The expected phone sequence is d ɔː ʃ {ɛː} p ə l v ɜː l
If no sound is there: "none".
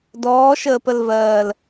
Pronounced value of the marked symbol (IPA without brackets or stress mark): əː